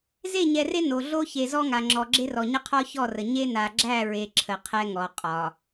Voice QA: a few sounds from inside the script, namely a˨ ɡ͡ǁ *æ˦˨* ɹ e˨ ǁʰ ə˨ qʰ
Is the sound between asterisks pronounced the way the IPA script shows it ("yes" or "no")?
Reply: yes